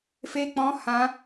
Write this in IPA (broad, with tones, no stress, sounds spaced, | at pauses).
f e˦ k͡p ɔ̃˦ h ã˦